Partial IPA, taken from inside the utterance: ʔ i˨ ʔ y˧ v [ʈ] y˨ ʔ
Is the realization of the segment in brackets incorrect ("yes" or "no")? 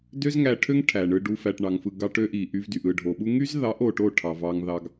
yes